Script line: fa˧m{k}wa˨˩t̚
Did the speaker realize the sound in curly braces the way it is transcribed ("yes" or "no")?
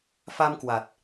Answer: yes